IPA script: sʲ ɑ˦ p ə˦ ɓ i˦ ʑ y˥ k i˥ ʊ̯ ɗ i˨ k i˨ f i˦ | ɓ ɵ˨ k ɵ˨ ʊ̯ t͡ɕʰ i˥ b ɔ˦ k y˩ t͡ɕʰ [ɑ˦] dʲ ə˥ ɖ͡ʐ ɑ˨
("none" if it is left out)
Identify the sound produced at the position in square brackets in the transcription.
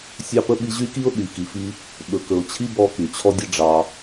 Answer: ɔ˦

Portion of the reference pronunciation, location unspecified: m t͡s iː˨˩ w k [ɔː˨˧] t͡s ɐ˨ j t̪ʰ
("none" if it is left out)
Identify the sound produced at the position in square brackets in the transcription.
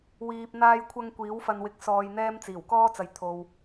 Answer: ɔː˥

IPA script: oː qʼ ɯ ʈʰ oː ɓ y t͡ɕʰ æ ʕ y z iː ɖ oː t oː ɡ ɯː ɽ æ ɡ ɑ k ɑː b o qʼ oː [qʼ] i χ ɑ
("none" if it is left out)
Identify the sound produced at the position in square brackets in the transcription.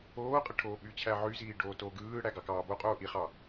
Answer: ʔ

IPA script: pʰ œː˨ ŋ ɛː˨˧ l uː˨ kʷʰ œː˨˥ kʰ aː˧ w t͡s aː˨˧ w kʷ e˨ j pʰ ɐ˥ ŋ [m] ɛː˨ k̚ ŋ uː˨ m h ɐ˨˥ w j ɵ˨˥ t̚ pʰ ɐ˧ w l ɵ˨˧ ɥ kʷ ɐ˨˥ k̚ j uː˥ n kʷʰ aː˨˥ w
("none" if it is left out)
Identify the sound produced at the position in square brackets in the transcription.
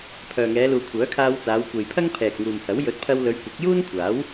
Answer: pʰ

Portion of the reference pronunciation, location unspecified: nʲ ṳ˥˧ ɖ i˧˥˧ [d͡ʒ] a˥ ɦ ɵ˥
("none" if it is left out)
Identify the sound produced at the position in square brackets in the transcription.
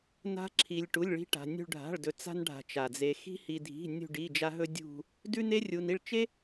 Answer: d͡ʒ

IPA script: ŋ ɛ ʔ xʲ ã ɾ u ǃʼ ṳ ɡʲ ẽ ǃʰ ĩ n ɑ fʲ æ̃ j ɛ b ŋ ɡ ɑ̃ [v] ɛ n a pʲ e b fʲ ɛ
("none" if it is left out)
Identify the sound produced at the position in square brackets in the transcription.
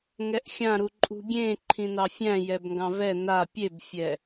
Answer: v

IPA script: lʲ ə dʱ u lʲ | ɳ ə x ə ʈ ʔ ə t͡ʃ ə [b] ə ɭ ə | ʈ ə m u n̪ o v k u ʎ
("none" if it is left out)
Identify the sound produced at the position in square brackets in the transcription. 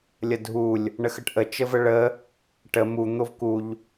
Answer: v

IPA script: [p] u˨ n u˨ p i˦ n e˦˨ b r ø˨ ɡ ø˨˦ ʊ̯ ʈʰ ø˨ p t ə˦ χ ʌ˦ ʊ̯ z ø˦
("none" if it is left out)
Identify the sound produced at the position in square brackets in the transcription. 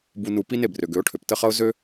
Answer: b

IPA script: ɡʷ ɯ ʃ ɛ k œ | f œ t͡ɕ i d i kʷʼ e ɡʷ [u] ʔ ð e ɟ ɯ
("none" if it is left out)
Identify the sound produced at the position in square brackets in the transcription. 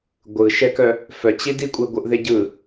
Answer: ɯ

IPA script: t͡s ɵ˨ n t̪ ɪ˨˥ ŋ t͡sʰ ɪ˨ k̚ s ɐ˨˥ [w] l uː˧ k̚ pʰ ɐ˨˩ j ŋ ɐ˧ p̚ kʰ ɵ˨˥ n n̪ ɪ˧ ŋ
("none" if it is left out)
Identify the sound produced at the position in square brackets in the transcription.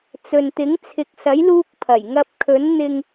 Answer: j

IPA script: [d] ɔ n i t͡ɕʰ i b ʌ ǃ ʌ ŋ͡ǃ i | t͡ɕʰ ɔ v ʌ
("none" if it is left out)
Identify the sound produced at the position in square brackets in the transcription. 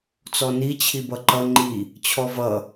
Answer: t͡s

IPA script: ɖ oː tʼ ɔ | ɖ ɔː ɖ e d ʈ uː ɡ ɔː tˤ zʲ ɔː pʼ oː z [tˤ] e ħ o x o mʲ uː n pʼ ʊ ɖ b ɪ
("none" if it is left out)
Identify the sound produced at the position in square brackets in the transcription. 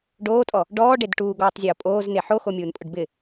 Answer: n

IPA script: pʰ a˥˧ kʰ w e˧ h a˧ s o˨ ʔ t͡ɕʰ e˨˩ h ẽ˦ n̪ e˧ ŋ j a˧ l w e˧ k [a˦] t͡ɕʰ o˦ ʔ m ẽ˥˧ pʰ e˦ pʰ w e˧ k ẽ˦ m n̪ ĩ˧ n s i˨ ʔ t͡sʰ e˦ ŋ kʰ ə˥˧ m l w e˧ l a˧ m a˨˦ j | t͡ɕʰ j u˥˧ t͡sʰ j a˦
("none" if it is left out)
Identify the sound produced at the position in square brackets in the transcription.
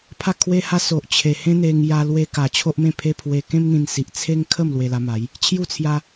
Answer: a˨˩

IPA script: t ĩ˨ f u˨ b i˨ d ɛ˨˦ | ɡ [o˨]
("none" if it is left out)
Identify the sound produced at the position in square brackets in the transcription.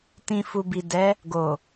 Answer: o˨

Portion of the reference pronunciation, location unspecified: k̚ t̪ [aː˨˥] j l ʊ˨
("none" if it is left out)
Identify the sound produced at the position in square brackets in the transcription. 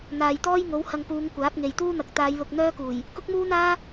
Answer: aː˨˧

